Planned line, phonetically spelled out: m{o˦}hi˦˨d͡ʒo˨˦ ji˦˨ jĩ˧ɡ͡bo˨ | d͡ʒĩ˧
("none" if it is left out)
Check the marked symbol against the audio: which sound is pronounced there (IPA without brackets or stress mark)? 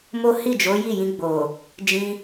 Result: o˦